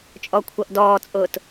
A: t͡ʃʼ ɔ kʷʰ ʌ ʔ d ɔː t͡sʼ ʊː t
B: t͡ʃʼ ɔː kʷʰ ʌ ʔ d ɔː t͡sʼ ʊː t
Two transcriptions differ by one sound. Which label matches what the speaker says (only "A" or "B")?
A